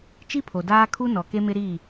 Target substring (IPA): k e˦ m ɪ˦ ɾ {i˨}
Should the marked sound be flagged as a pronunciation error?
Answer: yes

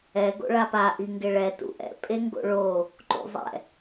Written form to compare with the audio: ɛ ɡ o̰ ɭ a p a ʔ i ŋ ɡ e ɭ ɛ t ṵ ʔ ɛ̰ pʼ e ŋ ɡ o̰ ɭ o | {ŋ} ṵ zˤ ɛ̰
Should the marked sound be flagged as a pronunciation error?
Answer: yes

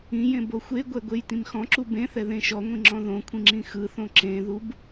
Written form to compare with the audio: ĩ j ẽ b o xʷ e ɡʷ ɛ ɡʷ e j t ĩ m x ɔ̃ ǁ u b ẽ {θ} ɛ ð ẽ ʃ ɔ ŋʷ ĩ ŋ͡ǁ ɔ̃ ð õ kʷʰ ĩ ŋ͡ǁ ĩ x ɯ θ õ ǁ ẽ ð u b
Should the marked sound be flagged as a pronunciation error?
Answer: no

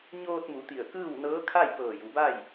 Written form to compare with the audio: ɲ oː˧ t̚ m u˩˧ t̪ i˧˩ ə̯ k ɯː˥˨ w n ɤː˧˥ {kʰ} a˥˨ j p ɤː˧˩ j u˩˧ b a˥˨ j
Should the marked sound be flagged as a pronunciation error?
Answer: no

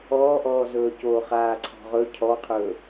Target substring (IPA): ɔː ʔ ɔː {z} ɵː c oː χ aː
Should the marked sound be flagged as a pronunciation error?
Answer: no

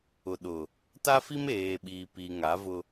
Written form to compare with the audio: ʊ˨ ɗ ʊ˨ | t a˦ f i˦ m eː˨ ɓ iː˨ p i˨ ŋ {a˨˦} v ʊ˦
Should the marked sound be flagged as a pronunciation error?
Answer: no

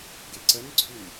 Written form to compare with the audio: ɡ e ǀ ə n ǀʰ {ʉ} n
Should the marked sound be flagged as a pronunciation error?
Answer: no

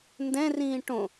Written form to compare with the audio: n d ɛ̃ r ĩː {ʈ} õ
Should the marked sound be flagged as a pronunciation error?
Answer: no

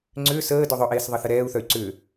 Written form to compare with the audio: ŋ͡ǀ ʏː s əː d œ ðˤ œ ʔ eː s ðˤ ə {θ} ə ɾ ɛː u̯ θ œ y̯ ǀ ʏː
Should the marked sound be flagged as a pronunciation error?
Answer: no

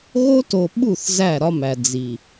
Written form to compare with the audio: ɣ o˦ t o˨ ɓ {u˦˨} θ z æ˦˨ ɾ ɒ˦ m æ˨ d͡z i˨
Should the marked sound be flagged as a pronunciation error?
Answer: no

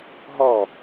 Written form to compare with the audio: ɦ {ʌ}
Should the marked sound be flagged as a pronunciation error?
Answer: yes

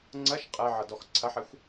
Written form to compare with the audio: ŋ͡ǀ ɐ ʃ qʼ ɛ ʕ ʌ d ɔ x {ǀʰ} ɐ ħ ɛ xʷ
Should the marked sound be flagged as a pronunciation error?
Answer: no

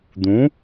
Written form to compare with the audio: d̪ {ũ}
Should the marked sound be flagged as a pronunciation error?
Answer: no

